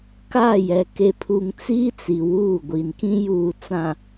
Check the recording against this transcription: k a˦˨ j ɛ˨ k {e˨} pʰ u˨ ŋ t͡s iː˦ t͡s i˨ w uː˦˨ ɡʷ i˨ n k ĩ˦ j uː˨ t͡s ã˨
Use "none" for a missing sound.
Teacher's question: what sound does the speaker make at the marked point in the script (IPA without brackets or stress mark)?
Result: e˨